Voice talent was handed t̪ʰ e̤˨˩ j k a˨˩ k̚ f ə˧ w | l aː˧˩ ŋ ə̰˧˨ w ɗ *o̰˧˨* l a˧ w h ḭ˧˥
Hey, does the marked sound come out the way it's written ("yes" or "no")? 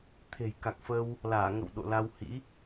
yes